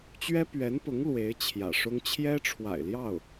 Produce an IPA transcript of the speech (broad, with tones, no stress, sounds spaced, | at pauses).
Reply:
t͡ɕ ɥ ɛ˥ p ɥ ɛ˧˥ n p ʊ˧˥ ŋ l w e˧˥ ɪ̯ t͡ɕʰ j ä̰˨˩ ʂ ʊ˥ ŋ t͡ɕʰ j ɛ˥ ʈ͡ʂʰ w a̰˨˩ ɪ̯ l j ɑ˥˩ ʊ̯